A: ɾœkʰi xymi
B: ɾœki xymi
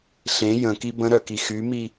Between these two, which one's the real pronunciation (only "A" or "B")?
B